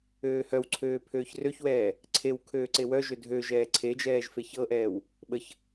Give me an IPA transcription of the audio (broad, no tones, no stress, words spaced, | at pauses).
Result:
øːhœwǀʰøː pʰøːçrøçwɛː | ǀʰew kʰøːǀewœʒø dʱø ʒɛːǀʰed͡ʒɛːʒ feçɤʔɛːw | ɓəç